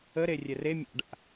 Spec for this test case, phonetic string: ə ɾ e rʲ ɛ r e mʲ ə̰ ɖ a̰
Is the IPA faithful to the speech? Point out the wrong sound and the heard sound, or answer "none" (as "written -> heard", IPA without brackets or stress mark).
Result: ə̰ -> a̰